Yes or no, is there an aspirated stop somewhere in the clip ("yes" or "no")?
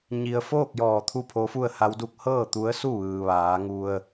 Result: yes